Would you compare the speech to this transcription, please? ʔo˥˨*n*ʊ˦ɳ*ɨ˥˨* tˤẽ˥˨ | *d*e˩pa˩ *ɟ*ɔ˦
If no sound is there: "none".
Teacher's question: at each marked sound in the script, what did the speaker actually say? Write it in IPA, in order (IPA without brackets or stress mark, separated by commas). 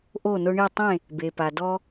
n, i˥˨, b, d